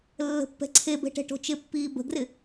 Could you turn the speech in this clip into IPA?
lːə̤pːɛ̤ǀʰebɛ̤ ʈɛ̤ʈo̤t͡ʃɪpːiː bə̤ɡrɪ

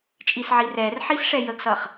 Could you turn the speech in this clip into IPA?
t͡ʃʼisʕirɛr ħisʂɛjəɡsʌχ

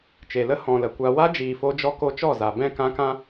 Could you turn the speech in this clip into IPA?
t͡ʃe˨lə˦ hɔ̃˨lə˨kʷa˧ wa˦d͡ʒiː˨fo˧ d͡ʒɔ˧ko˧t͡ʃɔ˦˨ za˨ bɛ̃˦˨ kã˦kã˦

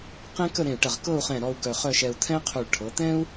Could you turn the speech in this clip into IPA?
qẽ˥kə˥˧ɾẽ˧˩y̯ʈə˧˩ʁ kɤ˥˧u̯χɛ̃˧˩ɾɔ˧u̯ ɡœ˧˩χœ˥˧ʃɛ˧u̯ t̪ʰɛ̃˥qʰu˧˩ɭʈʰɤ˩˧ t̪ɛ̃˥u̯

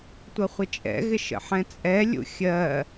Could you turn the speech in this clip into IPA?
tʷʌχʷɪt͡ʃʼɛ̰ɣɪ ʃə̰ħɛ̃t͡sʼɛlʲṵ xʲɜ

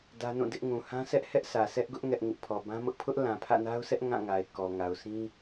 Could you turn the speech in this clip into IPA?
dä˦nũ˦˨dɪ˦ʔ ŋũ˨hã˦sɛ˦ʔhɛ˦ʔ sä˨sʰɛ˦ʔɡʊ˦ʔ ŋɛ˦ʔŋɪ˦ʔ pʰɔ˨bã˦mʊ˦ʔ pʰʊ˦ʔlã˨ pʰä̰˦˨na˦ʊ̯sʰɛ˦ʔ ŋã˦˨ŋa˨ɪ̯kɔ˨ŋa˨ʊ̯ sʰĩ˦

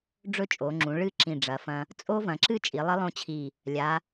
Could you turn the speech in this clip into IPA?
ɖ͡ʐɵ˥˧t͡ʃʼo˩˧ŋ͡ǁũ˩˧ ɭɨ˥˧ ǁĩ˧˩ɖ͡ʐɐ˩˧fɐ̃˧ | t͡sʼo˥ vɐ̃˩˧ǁɨ˥t͡ʃʼi˩˧ lˠi˥lˠõ˥˧t͡ɕʰi˧˩ | lʲa˩˧

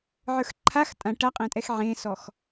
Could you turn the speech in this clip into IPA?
ʕə˞xǃʰax tʼã ʈaqʼɛ̃tʼɛx ʕẽsɔx

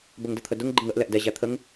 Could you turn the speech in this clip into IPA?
bəŋdət̪ʰədʊŋ ɡ͡ǃɪŋəʔ lɛʔdɛ ʑæt̪ʰəŋ

